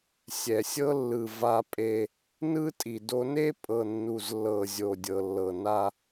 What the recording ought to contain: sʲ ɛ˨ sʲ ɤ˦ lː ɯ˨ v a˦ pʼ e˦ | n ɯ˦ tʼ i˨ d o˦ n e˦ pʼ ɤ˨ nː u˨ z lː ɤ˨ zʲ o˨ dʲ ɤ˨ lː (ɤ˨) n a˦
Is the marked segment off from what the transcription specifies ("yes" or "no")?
no